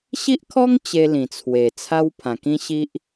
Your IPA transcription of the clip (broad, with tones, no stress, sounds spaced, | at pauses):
ɕ i˦ ʔ kʰ ɔ˦ ŋ t͡ɕ e˧ l ĩ˨˩ t͡sʰ w e˨˩ t͡sʰ a˦ w pʰ ã˨˩ k ĩ˦ ɕ i˦ ʔ